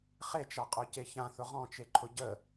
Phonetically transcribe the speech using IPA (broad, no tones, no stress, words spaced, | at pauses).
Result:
χet͡ʃaqʼœce çãθʊ ʁɔ̃t͡ʃeǃʰʊ ɟə